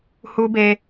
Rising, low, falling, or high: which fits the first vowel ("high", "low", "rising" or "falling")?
high